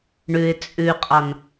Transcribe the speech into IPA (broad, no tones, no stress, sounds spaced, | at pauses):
ɳ ʉ ɪ̯ t͡sʼ ʉ qʼ ɑ n